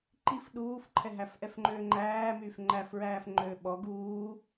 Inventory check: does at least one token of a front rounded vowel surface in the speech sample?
yes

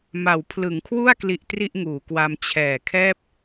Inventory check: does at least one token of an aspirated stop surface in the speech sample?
yes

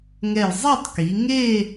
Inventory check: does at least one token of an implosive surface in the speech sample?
no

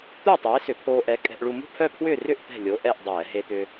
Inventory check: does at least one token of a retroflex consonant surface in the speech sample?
yes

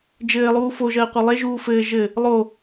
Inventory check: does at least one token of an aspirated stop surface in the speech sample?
no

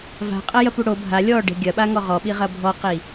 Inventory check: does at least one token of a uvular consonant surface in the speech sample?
yes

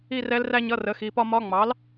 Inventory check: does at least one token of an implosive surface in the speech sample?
no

